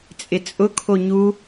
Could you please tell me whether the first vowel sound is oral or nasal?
oral